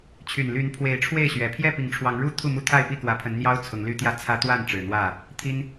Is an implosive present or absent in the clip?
absent